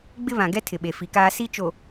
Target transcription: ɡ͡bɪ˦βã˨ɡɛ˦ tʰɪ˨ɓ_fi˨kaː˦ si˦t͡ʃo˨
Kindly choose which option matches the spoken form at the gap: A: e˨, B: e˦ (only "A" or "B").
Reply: A